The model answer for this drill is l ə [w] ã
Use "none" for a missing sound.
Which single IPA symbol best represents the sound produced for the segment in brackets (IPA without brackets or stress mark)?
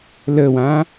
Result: w